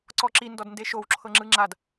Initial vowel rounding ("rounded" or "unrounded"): rounded